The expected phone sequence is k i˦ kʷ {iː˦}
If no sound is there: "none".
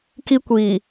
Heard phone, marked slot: iː˨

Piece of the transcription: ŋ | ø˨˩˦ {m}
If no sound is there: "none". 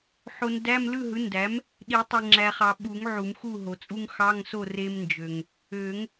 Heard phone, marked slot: ŋ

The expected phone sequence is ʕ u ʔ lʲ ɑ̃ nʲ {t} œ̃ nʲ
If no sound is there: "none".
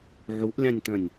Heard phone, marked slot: t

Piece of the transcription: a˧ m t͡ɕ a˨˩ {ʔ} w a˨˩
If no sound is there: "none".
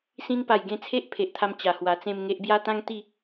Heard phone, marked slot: h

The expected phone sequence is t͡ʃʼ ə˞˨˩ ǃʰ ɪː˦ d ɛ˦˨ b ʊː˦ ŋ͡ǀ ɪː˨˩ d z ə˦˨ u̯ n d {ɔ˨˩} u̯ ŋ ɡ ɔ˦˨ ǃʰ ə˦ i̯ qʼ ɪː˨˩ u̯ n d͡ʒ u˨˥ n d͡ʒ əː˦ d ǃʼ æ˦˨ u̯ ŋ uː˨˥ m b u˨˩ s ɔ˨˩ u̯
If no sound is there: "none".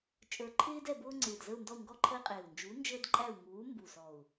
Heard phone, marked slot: ɔ˦˨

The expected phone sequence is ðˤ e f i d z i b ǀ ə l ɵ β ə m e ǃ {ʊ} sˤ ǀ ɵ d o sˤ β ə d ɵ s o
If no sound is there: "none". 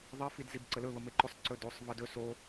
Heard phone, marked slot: ʊ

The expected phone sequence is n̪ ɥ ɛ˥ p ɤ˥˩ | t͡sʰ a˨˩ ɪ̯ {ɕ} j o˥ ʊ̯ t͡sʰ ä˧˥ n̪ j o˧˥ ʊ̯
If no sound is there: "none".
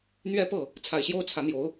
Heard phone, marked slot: ɕ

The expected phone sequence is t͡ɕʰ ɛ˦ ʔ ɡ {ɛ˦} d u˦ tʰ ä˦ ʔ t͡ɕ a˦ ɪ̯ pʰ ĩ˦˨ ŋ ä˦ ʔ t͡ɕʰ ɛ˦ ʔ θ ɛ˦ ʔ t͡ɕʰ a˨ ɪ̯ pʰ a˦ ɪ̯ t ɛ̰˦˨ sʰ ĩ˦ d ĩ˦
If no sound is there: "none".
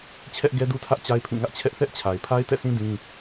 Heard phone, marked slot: ɛ˦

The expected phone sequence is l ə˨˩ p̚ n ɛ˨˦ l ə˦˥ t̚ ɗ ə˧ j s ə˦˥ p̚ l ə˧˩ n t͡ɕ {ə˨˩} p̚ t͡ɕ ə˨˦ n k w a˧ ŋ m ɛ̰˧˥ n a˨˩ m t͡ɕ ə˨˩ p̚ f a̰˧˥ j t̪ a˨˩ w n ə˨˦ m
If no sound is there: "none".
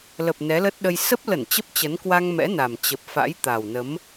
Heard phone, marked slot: ə˦˥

